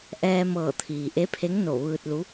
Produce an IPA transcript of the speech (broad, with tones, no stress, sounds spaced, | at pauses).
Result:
ʔ ɛː˧ m ɤː˧˩ t̪ʰ iː˩ ʔ e˧˥ pʰ e˧˥ ŋ n o˧˩ ʋ ɯː˧ t̚ l u˧˥